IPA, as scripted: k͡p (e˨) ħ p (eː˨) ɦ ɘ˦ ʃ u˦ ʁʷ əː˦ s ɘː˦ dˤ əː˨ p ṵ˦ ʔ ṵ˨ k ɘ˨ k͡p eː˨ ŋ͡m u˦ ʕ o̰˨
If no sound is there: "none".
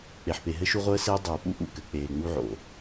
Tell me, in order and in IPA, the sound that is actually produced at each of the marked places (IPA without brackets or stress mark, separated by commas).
e˨, e˨